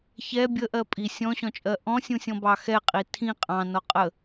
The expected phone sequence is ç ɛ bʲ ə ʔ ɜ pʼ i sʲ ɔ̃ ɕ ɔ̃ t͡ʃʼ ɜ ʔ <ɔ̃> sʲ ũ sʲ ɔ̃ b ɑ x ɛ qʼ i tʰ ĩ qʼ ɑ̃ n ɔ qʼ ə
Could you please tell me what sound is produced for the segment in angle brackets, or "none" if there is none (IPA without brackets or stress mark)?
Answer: ɔ̃